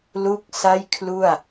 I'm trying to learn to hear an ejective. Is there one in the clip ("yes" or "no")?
no